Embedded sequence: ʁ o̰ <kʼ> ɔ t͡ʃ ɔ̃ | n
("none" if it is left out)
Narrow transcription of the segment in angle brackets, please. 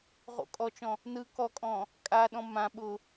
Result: kʼ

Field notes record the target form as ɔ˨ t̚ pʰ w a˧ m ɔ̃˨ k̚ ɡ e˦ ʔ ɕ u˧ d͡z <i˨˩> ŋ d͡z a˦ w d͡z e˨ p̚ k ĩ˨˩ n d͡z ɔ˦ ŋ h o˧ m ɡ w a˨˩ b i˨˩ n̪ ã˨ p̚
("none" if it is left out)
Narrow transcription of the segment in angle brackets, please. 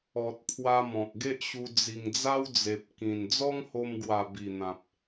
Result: i˨˩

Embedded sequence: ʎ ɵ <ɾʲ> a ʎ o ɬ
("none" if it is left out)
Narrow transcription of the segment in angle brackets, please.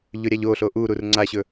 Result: ɾʲ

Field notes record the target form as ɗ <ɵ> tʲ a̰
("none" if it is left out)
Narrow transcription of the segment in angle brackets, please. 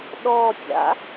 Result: ɔ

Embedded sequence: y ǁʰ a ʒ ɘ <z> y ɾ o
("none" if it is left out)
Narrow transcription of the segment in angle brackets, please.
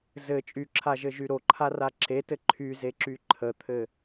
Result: ʒ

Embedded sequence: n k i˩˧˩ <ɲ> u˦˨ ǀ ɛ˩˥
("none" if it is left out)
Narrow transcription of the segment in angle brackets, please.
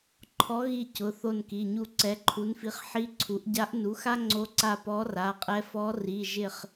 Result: ɲ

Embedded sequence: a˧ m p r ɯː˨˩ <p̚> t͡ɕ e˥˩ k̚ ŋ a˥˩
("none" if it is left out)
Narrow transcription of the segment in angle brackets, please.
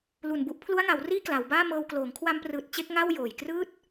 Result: t̚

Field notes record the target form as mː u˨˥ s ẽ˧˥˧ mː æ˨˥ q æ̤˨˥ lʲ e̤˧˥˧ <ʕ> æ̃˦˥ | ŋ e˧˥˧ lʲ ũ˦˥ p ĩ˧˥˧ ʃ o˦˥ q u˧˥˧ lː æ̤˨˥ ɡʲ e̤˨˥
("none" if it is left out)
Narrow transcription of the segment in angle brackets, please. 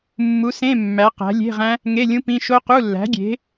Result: ʁ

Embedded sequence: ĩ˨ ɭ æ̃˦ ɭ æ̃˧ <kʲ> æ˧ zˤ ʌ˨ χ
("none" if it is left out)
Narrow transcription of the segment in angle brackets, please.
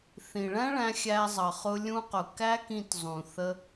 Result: xʲ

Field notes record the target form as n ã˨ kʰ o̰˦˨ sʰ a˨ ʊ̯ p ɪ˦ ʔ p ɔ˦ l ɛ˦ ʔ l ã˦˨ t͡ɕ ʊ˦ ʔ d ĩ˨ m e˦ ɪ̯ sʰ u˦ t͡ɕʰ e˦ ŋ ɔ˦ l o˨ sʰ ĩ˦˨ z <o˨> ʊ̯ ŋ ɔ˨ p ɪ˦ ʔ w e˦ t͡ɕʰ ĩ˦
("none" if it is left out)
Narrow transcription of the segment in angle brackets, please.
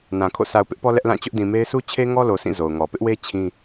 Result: o˨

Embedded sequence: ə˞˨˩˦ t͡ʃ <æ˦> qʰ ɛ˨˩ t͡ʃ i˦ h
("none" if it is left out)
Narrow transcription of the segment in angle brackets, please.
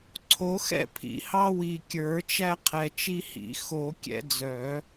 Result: æ˦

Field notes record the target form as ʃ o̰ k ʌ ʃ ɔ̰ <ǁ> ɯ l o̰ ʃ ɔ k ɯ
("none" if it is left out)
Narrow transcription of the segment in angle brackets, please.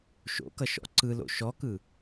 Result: ǀ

